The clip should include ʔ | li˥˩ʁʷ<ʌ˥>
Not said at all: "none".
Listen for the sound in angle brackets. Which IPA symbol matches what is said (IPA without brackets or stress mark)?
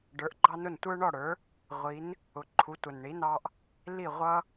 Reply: ʌ˥